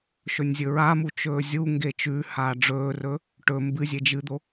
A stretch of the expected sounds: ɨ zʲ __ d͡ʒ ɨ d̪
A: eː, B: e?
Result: B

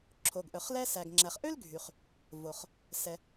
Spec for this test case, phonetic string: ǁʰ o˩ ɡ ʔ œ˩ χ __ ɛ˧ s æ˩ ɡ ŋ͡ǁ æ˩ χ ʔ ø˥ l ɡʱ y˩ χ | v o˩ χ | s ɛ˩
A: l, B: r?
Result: A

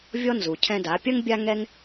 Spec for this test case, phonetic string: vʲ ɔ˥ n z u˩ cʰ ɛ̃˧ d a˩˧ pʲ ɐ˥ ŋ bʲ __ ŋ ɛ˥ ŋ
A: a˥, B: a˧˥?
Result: A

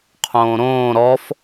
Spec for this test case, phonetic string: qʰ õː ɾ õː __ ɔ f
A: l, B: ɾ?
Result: B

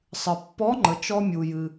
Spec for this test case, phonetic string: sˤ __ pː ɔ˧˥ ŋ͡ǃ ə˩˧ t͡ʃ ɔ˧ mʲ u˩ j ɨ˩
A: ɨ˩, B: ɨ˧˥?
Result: A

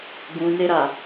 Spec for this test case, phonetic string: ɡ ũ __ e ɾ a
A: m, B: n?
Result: B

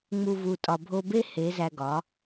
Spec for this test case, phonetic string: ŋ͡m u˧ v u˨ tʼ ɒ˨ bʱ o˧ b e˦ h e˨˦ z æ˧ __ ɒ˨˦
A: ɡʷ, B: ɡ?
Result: B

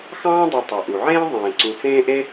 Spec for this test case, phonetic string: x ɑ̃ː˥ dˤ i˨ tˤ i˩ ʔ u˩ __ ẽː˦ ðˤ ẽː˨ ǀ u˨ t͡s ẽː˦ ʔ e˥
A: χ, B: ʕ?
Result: B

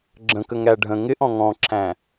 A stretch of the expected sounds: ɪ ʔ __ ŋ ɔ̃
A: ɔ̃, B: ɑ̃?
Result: A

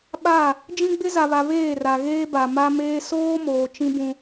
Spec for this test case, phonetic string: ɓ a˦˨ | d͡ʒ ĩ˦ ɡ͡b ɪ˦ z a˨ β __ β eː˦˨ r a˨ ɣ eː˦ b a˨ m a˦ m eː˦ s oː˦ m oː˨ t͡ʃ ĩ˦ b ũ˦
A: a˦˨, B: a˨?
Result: B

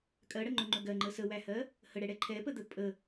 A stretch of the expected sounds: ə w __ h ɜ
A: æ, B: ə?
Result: A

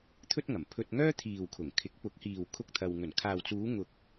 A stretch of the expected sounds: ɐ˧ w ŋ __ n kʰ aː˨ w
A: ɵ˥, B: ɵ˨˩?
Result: B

